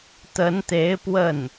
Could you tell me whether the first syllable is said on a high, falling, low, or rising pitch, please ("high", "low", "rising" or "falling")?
rising